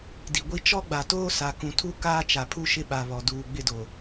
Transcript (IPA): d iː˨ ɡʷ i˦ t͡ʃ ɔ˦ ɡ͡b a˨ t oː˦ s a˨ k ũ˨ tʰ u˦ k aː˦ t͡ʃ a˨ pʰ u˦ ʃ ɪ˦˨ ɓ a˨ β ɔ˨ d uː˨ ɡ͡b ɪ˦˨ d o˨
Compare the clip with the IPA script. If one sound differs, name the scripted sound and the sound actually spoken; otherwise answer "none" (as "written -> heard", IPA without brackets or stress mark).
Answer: iː˨ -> i˨